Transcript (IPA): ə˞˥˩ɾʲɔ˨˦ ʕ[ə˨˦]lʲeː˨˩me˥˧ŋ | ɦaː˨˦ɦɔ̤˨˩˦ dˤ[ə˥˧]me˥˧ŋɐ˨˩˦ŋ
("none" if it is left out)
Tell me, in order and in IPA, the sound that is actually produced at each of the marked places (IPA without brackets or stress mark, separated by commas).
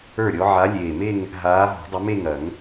a˨˦, ə˨˦